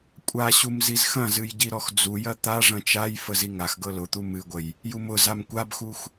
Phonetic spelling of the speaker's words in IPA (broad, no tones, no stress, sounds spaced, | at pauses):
kʷʼ a ɕ u m z i z x ɐ̃ z ɨ j ɟ i ɾ ɔ x d͡z u j ɐ t̪ a ʐ ɐ̃ t͡ʃ a j f ə z i ŋ a x ɡ ɤ l ʊ t̪ u m ɨ ɡʷ ə j | j u m ʊ z a m kʷ a b x u x